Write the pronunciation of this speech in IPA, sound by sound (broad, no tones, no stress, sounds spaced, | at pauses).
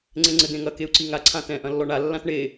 ŋ͡ǀ ẽ ŋ͡ǀ ɘ d̪ ẽ ŋ ɐ k e u̯ ǀ i ŋ a ǀʰ ã t ɛ̃ ʔ ɐ̃ lː ɔ ɳ a lː ã t ɳ e